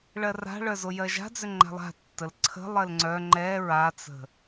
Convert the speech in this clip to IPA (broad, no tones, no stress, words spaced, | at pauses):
ɭɜra̤ɭœ zojɜʒa̤d͡zʏ ŋ͡ǃa̤lˠa̤tːəl ǀʰə̤lˠɜl ŋ͡ǀœ ŋ͡ǃɛ ɹat͡sə̤